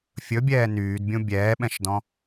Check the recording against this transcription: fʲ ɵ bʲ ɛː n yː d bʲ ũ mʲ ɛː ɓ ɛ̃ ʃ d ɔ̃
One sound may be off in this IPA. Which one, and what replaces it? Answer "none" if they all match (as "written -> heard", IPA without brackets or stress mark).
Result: mʲ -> bʲ